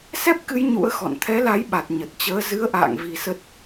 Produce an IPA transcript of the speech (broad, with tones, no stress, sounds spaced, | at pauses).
s ɛ˦˥ p̚ k ɨ˨˦ j ɲ ṵ˧˥ ə̯ x ɔ̰˧˨ n t̪ʰ ɛ˨˦ l a˨˦ j ɓ a˨˩ t̚ ɲ ə˨˩ t̚ t͡ɕ əː˨˦ z ɨ˨˦ ə̯ ʔ a̰ː˧˨ ŋ v i˧ s ə˦˥ t̚